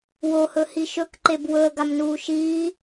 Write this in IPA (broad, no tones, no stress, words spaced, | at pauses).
wohɵhi ʃɵkǃeb wɵə̯ɡamnuː ʃiː